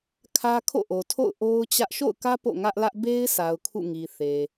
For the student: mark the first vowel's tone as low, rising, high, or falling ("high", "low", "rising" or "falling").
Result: high